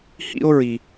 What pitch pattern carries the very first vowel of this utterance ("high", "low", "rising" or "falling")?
high